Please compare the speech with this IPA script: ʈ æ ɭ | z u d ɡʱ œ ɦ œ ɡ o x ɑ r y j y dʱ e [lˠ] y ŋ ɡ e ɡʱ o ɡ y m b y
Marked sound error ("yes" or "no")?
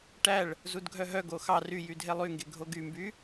no